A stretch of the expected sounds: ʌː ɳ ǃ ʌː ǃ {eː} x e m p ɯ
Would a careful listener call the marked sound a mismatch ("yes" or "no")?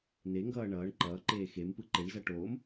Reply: no